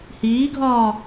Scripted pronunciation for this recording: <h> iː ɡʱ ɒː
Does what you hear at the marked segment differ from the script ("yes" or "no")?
no